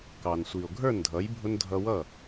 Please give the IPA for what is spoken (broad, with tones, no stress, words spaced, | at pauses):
kɑ˩n sʷi˩o̯ ɡʱə˞˥˩ndʱʌ˩˥j bʱʊ˧n dʱʌ˧wʌ˥˩